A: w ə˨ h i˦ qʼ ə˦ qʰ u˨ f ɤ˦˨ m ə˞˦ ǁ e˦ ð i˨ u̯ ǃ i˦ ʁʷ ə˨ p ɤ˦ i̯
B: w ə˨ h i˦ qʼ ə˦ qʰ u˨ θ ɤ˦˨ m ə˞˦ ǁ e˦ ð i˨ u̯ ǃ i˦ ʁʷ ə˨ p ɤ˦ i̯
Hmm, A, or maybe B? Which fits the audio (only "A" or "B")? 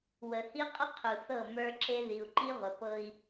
B